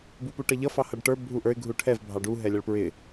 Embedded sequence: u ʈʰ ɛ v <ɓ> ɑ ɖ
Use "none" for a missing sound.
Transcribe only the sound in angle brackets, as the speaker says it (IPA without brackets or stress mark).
bʱ